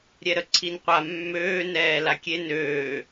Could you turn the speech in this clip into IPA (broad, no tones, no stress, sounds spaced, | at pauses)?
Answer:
ɾʲ ɛ ɾ ə ǀʰ i n qʷ a mː øː n ɛː l a kʲ e n øː